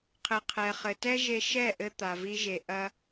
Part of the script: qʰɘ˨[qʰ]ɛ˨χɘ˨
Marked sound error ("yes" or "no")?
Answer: no